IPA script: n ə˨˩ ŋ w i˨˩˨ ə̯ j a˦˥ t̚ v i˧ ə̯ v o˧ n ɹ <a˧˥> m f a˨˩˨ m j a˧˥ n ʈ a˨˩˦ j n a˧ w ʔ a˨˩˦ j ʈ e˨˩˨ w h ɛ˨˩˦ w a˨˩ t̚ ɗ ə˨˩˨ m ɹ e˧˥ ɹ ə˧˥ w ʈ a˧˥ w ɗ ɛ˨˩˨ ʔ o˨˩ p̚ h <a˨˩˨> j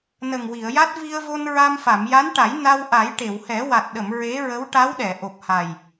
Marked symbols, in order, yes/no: no, no

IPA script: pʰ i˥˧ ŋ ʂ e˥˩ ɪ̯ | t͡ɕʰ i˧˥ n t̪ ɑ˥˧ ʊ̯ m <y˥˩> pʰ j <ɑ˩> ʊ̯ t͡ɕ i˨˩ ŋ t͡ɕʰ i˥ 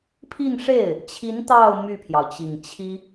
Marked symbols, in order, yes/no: yes, yes

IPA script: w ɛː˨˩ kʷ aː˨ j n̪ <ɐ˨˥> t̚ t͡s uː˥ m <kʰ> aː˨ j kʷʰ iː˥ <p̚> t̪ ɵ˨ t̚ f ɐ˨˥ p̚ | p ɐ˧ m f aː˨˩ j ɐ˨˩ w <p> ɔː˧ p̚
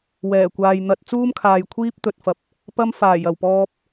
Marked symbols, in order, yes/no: no, yes, yes, yes

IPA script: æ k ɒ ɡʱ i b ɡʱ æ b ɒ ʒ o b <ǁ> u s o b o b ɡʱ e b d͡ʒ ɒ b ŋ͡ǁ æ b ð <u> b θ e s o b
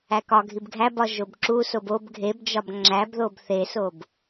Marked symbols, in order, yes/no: yes, no

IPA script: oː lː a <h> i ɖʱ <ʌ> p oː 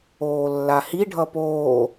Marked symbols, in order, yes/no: yes, yes

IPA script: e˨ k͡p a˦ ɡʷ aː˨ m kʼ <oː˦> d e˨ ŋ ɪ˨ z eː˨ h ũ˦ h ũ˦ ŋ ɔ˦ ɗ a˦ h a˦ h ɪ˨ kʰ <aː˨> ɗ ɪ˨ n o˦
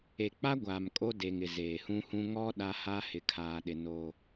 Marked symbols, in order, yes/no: no, yes

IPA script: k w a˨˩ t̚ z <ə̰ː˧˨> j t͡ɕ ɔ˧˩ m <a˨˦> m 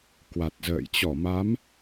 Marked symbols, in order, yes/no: yes, yes

